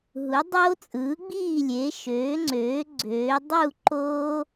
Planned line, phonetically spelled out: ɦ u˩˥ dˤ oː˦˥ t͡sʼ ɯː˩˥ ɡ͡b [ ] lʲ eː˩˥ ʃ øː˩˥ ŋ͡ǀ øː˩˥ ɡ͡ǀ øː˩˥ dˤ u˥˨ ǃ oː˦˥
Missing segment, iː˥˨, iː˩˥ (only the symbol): iː˥˨